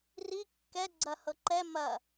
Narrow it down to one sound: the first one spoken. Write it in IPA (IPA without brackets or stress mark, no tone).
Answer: r